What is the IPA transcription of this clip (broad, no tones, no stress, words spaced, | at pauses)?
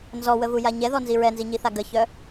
nzɔwəvuja ɲɛðɔnzi ɹɛnziɲiθa ɡəçœ